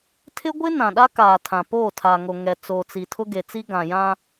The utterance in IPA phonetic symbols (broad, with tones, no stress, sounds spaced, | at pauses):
tʰ ɪ˦ ɡʷ ɪ˦ n ã˨ ɗ a˦ k aː˨ tʰ ã˨ p oː˦˨ tʰ a˨ ŋ o˨ ŋ ɛ˨ t͡s oː˨ t͡s i˨ tʰ ʊ˦ ɡ e˨ t͡s i˦ ɡ ã˨ j ã˦